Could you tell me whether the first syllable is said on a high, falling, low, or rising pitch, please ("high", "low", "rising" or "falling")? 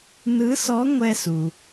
rising